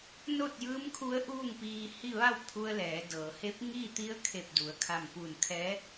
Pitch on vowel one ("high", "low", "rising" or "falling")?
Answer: falling